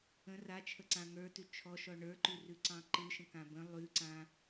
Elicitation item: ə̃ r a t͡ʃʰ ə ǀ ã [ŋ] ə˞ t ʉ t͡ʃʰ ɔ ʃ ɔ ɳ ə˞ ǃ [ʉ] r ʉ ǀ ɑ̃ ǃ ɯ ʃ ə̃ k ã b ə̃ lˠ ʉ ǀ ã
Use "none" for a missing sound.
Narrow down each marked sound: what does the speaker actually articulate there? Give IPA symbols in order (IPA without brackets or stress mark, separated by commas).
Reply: ŋ, ʉ